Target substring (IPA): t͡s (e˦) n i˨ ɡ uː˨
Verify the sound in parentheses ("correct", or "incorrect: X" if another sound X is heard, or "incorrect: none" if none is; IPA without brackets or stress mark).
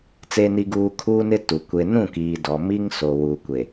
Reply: incorrect: e˨